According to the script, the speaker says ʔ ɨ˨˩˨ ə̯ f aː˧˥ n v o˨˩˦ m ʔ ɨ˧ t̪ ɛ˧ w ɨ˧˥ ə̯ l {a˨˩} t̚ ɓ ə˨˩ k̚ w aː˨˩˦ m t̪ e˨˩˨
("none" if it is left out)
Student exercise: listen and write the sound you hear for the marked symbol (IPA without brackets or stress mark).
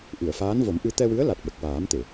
a˨˩